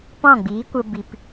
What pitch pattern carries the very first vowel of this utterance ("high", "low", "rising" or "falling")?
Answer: falling